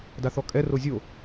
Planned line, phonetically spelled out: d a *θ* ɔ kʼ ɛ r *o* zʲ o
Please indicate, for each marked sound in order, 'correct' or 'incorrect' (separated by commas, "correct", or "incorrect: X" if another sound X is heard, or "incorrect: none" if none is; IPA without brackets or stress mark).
correct, correct